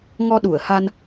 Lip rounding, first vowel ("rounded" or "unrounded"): rounded